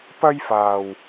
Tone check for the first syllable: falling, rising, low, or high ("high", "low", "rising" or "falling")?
high